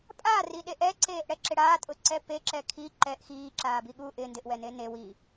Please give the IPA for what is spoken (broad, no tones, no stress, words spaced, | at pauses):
pʼariɗeʔ ɛǀeːʔɽɛǁɪ ɽaːtʼʊǀɛ peǁɛ kʰi ǃɛʔ xiːǁaːbi ɠu ʔɪ ndɪʔwɛne ne wi